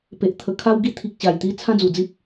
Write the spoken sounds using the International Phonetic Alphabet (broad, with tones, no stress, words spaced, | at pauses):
pe˨ʔ t̪ʰə˨˩ kʰa˧wɡi˧t̪ʰi˨k̚ ɕa˨˩jt̪i˧ t͡sʰã˦d͡zu˨˩d͡zi˦p̚